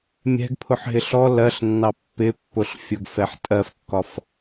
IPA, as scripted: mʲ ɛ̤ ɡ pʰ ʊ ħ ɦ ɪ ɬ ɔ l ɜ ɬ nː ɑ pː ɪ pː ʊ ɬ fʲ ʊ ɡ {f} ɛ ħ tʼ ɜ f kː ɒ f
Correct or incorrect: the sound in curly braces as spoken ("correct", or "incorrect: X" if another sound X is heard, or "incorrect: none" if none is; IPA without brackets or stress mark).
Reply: correct